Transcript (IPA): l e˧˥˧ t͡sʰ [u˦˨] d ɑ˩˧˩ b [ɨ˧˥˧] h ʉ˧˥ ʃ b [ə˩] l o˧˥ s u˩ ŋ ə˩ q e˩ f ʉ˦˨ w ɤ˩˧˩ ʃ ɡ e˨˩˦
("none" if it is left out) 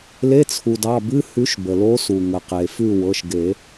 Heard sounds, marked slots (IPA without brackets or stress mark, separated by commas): u˩, ɨ˧˥˧, ə˩